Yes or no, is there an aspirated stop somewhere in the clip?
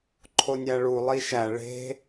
yes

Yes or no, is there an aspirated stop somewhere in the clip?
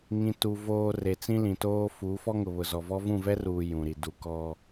no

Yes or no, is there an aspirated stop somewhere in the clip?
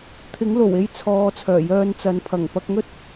yes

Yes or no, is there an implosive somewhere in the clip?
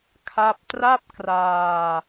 no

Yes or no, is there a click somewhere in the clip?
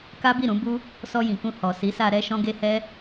no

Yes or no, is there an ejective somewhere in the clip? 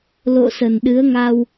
no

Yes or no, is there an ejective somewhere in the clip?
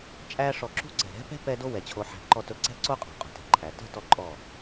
yes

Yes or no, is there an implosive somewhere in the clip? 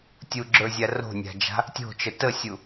no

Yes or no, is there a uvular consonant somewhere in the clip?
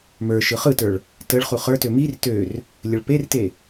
yes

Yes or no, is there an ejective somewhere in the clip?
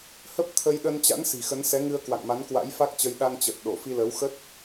no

